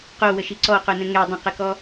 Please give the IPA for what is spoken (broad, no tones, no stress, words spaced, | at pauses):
qowəʃi ǀɔqonə̃ ŋɛ dˤə̃qəkɔ